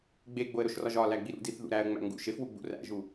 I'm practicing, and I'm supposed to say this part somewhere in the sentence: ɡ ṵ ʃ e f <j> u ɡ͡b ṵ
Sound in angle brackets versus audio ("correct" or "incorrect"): incorrect